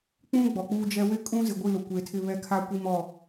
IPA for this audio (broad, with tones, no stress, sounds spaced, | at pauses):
k͡p ũ˦ ɡ͡b ɔ˨ k͡p uː˦ d͡ʒ ɛ˦ w ɪ˦ kʼ ũ˦ z ɪ˨ ɡʷ i˦˨ l ʊ˨ kʷ eː˨ tʰ ɪ˦˨ β ɛ˦ kʰ a˦ kʷ i˦ m ɔ˦˨